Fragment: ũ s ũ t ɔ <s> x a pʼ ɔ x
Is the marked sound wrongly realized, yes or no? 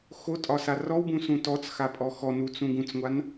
yes